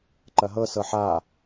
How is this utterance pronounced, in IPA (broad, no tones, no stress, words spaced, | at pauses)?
ǃɐɦɤ sɤħa